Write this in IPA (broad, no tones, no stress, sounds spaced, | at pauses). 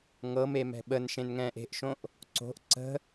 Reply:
ŋ ɤ m e m ɛ̤ ɓ ə n ʃ ẽ n ŋ ɛ̃ː ʔ e̤ ʔ ʃ õ ʔ | ǀ o̤ ʔ ǀ ə̤